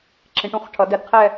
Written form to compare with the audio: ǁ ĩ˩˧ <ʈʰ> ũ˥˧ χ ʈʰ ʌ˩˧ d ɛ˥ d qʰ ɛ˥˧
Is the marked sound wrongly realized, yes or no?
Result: yes